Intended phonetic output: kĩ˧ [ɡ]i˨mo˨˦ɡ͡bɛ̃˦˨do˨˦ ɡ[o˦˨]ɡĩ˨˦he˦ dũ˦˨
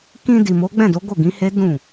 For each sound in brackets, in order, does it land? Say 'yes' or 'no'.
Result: no, yes

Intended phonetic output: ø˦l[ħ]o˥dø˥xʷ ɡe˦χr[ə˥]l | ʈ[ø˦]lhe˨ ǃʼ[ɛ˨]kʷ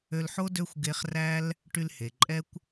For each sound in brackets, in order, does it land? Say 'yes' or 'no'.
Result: yes, no, no, no

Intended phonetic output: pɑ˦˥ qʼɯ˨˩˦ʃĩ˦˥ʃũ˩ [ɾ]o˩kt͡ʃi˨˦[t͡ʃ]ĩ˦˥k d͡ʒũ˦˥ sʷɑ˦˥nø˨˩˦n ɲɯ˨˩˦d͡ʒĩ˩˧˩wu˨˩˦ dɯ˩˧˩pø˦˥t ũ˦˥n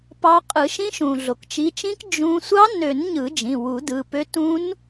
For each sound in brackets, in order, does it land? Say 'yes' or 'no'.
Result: no, yes

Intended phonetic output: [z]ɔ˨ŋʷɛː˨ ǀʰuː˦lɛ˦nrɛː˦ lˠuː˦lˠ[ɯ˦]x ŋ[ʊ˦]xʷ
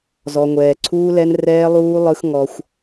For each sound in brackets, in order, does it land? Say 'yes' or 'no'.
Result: yes, yes, no

